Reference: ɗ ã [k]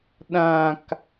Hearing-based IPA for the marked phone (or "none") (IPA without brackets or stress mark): k